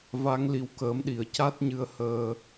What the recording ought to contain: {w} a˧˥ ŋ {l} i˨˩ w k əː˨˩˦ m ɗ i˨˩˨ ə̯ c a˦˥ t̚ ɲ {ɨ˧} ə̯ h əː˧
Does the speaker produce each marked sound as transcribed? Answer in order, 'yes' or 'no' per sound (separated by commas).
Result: no, yes, yes